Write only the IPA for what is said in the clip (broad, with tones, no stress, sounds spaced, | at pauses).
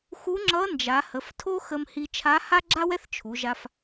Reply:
x u˧˥ ŋ͡ǁ ʌ˧˥ n d͡ʒ a˩˧ h ə˩˧ f tʰ o˥ x ə˧ m h i˧ t͡ʃʰ a˧˥ h a˥ ɡ͡ǁ a˥ w ɛ˥ θ t͡ʃʰ u˩˧ ʒ a˧ f